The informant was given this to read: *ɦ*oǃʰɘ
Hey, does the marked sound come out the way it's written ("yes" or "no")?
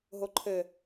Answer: yes